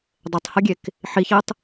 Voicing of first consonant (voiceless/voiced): voiced